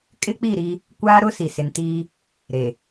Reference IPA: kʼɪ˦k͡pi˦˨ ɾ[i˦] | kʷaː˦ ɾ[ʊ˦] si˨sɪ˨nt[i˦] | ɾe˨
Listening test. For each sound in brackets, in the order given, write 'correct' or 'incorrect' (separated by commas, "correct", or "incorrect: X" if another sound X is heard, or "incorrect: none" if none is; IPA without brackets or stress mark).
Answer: correct, correct, incorrect: iː˦